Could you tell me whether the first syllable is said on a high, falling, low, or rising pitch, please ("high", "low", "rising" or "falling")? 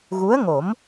rising